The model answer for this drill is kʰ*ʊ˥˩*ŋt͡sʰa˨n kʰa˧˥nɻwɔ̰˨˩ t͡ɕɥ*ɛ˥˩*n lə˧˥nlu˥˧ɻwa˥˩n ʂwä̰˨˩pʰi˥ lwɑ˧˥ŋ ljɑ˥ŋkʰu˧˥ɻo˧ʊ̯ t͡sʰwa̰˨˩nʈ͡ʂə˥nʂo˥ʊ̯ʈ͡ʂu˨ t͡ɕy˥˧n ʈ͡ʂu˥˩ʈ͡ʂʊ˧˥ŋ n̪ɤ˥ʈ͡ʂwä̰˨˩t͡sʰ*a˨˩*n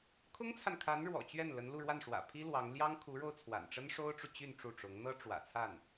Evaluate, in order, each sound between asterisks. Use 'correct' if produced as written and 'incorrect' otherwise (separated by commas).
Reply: incorrect, correct, incorrect